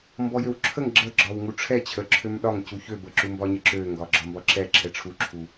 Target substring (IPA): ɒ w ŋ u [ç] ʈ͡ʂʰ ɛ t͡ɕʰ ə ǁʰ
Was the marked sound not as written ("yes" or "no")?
yes